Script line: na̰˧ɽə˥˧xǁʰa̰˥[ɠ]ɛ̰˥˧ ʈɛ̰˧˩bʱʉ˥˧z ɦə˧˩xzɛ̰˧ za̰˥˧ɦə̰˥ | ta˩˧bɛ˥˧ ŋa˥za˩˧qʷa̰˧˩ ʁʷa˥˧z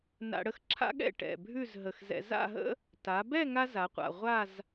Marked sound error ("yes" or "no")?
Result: no